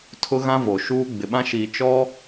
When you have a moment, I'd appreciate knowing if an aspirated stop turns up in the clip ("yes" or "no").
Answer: yes